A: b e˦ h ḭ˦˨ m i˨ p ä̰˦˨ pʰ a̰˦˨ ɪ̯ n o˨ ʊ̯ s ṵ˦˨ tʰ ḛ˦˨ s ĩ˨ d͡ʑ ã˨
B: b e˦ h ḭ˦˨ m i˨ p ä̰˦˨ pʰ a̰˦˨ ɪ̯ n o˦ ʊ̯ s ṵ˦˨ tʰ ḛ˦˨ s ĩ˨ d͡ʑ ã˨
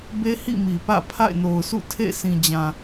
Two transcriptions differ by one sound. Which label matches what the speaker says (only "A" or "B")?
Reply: A